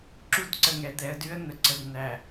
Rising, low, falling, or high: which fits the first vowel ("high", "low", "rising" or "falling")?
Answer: high